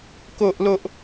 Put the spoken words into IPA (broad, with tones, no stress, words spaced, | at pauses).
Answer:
ko˦ʔlo˦ʔ